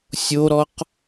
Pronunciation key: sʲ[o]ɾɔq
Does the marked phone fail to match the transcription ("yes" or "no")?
no